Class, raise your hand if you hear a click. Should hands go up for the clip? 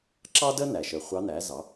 yes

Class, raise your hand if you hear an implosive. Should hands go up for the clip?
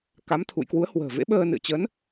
yes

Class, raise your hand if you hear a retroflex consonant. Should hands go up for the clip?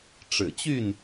yes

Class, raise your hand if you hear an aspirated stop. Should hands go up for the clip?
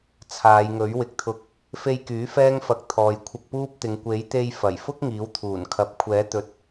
yes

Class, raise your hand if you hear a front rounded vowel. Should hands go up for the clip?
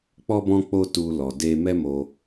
no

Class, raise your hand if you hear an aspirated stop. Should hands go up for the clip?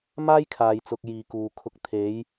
yes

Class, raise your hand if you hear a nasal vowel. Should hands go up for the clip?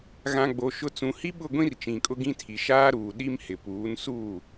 yes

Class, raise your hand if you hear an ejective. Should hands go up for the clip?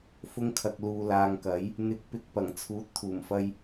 no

